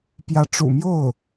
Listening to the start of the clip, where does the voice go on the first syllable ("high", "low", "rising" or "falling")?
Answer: rising